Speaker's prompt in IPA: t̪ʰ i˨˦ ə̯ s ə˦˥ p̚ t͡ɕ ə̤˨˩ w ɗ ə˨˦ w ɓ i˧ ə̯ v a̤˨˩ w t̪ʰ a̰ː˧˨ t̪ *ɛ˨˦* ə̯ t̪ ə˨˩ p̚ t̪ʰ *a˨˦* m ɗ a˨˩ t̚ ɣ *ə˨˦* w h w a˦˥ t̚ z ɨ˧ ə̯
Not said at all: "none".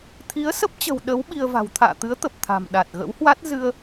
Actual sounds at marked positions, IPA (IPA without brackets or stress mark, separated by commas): ɨ˨˦, a̤˨˩, ə̰˧˥